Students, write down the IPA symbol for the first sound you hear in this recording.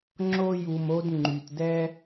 ŋ͡ǁ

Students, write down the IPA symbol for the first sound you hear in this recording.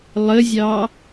lˠ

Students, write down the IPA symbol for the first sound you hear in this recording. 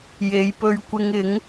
j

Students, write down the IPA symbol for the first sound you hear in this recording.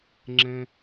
ŋ͡ǁ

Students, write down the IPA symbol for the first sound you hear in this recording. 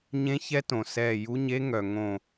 ɲ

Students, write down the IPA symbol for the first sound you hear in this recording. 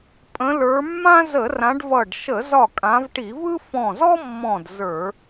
pʼ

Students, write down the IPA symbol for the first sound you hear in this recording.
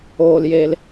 oː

